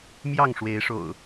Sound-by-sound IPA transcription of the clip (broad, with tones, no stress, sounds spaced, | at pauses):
m j ɑ˥˨ ŋ ʂ w e˨˦ ɪ̯ ʂ o̰˨˩ ʊ̯